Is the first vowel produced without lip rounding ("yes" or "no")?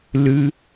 yes